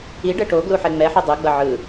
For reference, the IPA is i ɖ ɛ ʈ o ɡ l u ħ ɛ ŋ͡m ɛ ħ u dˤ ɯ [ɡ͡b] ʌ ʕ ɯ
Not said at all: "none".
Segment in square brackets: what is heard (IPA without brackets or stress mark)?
ɡ͡b